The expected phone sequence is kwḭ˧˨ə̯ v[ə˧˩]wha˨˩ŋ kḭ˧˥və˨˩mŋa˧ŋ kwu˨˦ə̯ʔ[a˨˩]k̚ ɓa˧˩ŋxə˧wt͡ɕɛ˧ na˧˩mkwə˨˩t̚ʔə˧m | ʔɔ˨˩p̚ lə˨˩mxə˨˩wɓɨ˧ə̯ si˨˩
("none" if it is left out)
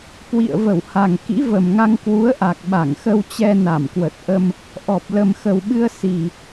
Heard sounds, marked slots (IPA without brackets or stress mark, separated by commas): ə˧˩, a˨˩